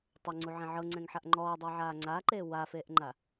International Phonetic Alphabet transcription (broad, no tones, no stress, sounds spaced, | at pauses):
tˤ o ŋ͡ǀ u ʕ ɛ̃ ʕ ɤ ŋ͡ǀ ɛ̃ ŋ ħ a ʔ ŋ͡ǃ ɔː dˤ a ʕ aː ŋ͡ǀ aː ǃ eː w a f eː ʔ ŋ͡ǃ a